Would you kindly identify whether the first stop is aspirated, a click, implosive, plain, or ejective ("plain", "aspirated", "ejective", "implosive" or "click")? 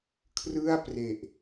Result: aspirated